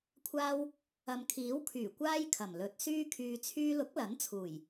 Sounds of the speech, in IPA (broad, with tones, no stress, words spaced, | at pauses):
kʷʰaː˧w | ɐ˨m kʰiː˨˥wkʰyː˨˩ kʷaː˥jkʰɐ˨˩mlɵ˨˥t̚ syː˧kʰyː˨t͡sʰyː˧lʊ˨˥k̚ lɐ˨˥n t͡sʰuː˨˩j